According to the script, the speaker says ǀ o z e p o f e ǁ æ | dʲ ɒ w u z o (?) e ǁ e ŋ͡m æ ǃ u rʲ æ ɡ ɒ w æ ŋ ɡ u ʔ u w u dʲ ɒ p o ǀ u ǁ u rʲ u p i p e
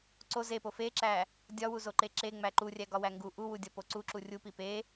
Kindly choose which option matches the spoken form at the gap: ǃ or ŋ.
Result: ǃ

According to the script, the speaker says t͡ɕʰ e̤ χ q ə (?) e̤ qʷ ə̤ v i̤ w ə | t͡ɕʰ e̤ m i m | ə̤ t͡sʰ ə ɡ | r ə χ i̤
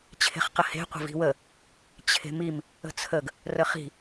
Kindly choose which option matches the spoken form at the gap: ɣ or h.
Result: h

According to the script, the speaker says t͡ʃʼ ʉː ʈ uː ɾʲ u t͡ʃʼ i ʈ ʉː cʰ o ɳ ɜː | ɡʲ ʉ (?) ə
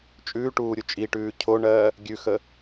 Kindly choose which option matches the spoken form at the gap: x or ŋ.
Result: x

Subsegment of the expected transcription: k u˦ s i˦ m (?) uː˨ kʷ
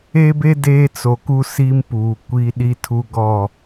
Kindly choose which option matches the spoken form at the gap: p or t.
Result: p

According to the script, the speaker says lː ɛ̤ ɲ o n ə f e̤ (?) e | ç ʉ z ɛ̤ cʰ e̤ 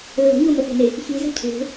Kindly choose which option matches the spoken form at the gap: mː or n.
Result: n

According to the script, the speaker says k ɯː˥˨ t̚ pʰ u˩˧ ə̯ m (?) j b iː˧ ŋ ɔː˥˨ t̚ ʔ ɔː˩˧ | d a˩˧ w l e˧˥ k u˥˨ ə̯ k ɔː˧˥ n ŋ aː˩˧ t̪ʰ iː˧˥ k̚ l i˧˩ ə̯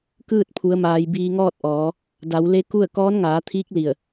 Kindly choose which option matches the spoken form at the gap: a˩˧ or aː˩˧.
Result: aː˩˧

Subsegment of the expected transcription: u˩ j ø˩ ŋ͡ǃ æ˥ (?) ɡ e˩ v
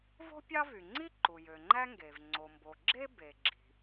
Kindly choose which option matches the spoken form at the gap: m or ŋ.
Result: ŋ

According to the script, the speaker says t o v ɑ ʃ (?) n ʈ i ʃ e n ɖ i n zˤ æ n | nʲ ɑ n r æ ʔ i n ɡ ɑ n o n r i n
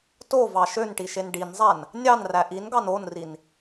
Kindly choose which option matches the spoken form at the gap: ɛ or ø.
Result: ø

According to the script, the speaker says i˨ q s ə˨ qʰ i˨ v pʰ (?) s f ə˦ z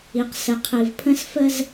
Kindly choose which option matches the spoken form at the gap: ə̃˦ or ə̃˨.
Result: ə̃˦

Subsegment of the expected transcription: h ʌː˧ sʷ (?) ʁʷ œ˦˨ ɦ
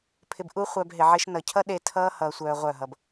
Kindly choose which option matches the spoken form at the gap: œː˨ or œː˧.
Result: œː˧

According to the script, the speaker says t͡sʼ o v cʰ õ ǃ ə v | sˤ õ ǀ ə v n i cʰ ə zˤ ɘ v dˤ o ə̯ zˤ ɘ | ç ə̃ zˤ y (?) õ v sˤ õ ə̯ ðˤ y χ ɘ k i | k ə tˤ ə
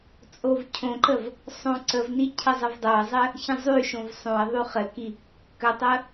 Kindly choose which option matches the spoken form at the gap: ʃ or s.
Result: ʃ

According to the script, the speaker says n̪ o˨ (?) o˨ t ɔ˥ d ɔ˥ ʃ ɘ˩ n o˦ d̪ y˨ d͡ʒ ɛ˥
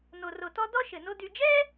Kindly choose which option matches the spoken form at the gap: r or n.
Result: r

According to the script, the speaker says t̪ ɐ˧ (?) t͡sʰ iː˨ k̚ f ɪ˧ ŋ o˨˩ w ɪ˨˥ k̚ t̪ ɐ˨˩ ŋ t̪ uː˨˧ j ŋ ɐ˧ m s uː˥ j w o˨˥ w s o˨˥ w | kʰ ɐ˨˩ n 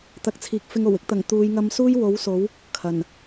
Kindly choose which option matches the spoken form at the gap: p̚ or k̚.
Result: k̚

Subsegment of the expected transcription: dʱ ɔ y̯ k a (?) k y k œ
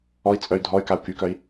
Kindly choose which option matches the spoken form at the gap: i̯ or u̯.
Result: u̯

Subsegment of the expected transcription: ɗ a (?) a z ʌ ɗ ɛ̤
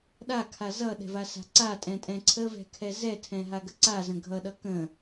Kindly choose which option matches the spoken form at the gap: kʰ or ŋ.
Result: kʰ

